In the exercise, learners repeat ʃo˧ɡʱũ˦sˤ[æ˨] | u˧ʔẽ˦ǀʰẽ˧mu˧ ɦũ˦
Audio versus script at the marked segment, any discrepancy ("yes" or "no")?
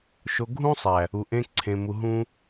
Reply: no